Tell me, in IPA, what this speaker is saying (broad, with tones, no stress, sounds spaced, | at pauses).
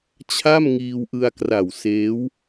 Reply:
t͡ɕʰ a˥˩ m ŋ iː˧ w ʔ ɯ˧ a̯ k r a˨˩ w s eː˦˥ w